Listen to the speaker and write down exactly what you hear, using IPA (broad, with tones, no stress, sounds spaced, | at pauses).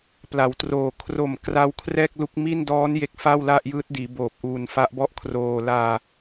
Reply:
p l a˩˦ w t r oː˨˩ kʰ r o˨˩ m k r a˦˥ w kʰ r ɛː˥˩ k̚ l u˦˥ k̚ m i˥˩ n d ɔː˦˥ n j e˦˥ k̚ f aː˥˩ w l a˥˩ ʔ j ɯː˦˥ t̚ d iː˩˦ b oː˨˩ p̚ ʔ uː˨˩ n f a˦˥ ʔ b ɔ˥˩ ʔ kʰ r oː˧ l aː˧